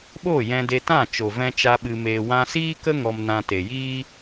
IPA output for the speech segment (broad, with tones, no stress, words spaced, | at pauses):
ɓo˦˨jɛ̃˧de˧tã˦˨ t͡ʃo˨vɛ̃˧t͡ʃa˧ ɓɨ˧meː˧ wã˧siː˦kə˦ ŋɔ˧mnã˧te˨ jiː˦